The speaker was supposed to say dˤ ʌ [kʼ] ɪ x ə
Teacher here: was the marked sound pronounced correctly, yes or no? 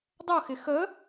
no